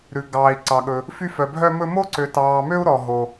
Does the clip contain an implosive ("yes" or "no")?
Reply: yes